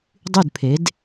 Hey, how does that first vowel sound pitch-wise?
falling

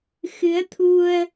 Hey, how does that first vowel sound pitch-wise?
rising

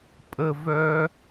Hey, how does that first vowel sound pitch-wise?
high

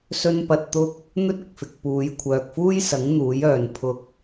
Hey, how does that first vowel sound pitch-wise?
high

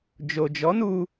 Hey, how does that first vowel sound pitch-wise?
low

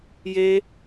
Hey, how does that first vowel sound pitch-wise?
high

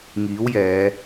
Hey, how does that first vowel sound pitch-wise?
rising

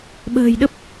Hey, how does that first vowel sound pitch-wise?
low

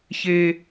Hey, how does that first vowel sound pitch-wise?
high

